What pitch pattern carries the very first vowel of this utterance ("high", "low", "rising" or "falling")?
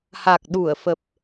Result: low